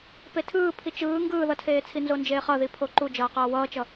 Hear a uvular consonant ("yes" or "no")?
yes